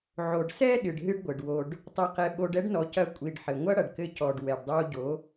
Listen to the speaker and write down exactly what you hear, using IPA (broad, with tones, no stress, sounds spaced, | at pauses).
ʕ o˨ ɖ s ɛ˦ ɗ ɨ˨ ɖ ɦ ɨ˦ ɖ ɡʷ ɘ˨ ɖ w o˧ ɖ | tˤ ɘ˧ q ɛ˧ ɓ o˧ ɖ ɛ˧ ɖ n ɔ˨ c ɐ˧ kʷʼ i˨ ɖ ħ ɘ˨ ŋʷ ɐ˦ ɽ ɐ˨ ɖ k ɘ˧ c ɔ˨ ɖ w ɛ˨ ɖ dˤ o˧ ɟ o˨˦